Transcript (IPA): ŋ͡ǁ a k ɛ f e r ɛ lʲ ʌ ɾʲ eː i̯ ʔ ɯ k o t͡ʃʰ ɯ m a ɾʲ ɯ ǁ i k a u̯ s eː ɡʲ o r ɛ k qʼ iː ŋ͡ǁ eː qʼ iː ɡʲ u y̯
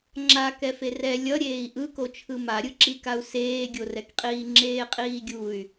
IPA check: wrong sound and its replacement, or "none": none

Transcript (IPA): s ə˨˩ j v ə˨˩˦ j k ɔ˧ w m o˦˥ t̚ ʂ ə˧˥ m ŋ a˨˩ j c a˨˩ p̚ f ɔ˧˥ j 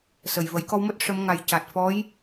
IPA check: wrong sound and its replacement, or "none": p̚ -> t̚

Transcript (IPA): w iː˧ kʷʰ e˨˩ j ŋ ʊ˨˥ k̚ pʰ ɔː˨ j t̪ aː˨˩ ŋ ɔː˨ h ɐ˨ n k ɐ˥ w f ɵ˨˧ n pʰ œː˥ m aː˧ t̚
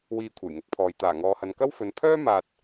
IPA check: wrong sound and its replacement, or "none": none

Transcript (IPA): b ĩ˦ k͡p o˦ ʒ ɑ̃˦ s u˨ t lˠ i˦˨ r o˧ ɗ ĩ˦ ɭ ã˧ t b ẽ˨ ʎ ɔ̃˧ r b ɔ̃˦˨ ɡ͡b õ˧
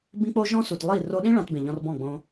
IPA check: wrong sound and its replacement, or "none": ɑ̃˦ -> ɔ̃˦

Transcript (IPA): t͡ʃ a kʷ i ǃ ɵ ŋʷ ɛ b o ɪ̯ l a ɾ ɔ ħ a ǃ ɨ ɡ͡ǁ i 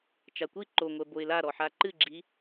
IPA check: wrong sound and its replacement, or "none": ɵ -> o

